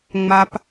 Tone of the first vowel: high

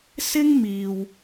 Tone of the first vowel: high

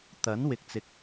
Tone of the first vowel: rising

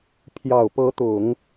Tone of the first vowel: low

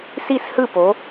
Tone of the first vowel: falling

